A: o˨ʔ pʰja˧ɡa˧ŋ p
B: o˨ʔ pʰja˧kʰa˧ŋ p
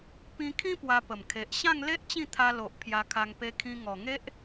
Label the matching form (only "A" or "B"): B